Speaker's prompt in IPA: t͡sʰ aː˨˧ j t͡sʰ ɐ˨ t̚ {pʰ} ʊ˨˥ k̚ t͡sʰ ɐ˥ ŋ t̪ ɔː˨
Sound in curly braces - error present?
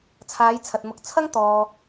yes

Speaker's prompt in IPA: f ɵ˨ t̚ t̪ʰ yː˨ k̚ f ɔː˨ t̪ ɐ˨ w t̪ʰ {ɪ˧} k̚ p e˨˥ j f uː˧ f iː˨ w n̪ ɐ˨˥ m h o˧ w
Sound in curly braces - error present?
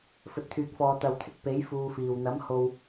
no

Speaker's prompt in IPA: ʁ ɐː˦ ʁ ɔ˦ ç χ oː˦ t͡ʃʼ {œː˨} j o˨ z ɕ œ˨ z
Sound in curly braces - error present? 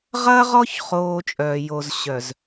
no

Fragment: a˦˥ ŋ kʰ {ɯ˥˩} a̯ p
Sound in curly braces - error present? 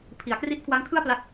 no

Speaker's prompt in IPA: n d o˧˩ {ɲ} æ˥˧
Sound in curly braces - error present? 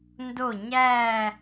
no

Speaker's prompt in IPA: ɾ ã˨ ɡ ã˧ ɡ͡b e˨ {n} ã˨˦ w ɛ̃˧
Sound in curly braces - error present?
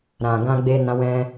no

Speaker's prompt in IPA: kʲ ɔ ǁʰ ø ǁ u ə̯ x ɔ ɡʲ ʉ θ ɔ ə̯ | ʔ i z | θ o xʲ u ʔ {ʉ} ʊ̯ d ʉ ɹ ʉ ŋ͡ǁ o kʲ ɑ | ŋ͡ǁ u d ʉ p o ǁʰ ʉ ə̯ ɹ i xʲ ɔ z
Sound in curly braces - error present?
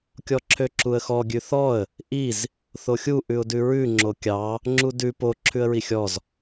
no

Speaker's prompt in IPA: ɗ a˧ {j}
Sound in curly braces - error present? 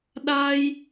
no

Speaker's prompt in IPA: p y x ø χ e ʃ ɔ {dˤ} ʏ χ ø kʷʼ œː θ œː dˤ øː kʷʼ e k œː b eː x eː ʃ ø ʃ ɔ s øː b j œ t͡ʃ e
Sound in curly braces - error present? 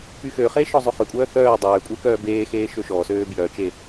yes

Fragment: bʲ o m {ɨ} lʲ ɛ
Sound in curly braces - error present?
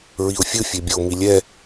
yes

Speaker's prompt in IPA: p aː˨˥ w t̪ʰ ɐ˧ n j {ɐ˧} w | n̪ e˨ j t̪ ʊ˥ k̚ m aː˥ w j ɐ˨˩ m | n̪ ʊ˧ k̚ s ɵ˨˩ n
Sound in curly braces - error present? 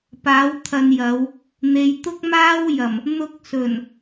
yes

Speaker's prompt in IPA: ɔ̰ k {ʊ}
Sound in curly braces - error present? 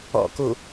yes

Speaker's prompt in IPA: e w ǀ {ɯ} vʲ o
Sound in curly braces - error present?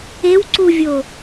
yes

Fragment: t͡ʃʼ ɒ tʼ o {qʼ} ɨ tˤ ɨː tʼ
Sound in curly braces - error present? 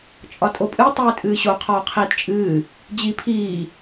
yes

